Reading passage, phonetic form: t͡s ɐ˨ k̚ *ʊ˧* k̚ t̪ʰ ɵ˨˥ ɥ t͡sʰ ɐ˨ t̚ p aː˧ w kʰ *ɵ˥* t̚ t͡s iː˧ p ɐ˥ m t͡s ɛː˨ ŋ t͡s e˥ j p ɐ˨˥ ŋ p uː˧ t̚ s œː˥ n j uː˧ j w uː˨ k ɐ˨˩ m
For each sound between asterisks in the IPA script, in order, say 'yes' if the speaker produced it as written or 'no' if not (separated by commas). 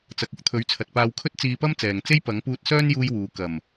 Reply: no, yes